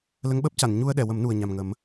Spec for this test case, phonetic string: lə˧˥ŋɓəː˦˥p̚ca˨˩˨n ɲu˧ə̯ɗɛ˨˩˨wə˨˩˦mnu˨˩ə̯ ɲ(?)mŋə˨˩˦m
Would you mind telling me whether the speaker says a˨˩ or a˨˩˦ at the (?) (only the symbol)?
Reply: a˨˩